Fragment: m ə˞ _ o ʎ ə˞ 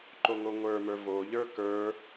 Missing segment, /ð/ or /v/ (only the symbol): v